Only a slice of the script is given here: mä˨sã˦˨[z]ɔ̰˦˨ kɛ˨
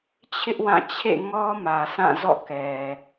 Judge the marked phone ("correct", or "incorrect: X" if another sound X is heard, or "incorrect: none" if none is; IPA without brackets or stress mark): correct